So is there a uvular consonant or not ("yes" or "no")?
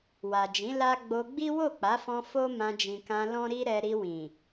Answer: no